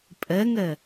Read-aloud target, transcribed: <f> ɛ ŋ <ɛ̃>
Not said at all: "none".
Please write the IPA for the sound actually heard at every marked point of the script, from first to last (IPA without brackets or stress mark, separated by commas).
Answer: pʼ, ɛ